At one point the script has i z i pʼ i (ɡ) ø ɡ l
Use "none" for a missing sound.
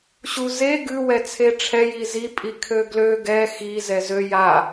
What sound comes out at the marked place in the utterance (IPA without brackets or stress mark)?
kʰ